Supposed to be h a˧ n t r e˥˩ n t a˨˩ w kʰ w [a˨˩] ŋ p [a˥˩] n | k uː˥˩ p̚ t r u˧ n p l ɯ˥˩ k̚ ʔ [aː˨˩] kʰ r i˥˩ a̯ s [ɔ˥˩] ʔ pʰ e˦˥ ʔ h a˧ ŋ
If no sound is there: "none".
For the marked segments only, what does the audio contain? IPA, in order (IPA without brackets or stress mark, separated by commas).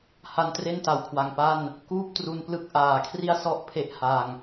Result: a˨˩, a˥˩, aː˨˩, ɔ˥˩